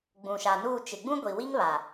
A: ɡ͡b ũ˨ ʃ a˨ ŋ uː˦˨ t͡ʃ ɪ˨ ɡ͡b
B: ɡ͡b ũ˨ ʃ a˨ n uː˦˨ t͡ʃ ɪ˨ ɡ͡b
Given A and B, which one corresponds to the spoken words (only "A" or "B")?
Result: B